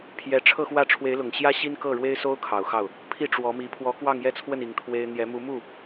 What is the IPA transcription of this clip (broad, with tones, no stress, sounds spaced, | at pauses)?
pʰ j ɛ˧˥ ʈ͡ʂʰ ɤ˥˧ x w ä˥˩ ʈ͡ʂʰ w e˧˥ ɪ̯ l ʊ˨˩ ŋ ɕ j ä˥ ɕ i˥ n k ɤ˥˩ ɻ w e˥ ɪ̯ s o˥ ʊ̯ kʰ ɑ˨˩ ʊ̯ x ɑ˥˩ ʊ̯ | pʰ i˥˩ ʈ͡ʂ w ɔ˧˥ m i˧˥ pʰ w ɔ˧˥ k w ɑ˥˧ ŋ j ɛ˥˧ t͡sʰ w ə˥˩ n i˧˥ ŋ t̪ʰ w e˥ ɪ̯ n̪ j ɛ˧˥ m u˧˥ m u˥˩